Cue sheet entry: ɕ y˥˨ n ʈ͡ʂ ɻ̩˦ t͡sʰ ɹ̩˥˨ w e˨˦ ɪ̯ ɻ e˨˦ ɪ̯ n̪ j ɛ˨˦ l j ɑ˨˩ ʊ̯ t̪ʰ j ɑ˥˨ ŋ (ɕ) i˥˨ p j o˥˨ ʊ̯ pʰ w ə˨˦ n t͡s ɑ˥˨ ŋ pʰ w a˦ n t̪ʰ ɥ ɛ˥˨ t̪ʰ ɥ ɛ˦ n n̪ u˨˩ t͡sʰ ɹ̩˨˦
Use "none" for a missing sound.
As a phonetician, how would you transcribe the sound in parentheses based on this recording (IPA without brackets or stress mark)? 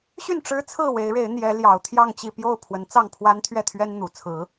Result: t͡ɕ